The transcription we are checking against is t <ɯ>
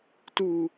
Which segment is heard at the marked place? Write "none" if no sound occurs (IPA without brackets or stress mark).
u